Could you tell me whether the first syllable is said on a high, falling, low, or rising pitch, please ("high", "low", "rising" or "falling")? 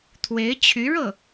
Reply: rising